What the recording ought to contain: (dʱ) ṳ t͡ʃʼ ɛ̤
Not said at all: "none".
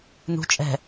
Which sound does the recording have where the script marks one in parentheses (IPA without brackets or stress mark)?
n